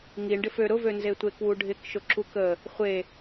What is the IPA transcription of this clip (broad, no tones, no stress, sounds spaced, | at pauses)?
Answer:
ŋ i ɳ ɖ ɪ f ø ɾ ʊ v ø n z e tʷ e k w u ɖʱ ɪ k ʃ ʊ ǁ u k ə | χʷ e